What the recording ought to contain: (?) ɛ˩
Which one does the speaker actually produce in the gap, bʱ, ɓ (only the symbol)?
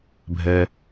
bʱ